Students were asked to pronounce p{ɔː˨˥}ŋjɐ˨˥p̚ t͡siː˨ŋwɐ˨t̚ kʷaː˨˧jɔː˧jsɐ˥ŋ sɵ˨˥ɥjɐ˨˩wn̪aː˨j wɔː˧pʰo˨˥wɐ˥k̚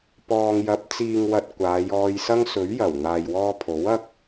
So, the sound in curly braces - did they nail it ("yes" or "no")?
no